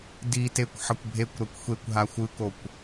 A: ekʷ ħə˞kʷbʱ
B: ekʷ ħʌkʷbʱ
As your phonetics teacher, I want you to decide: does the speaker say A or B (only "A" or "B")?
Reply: B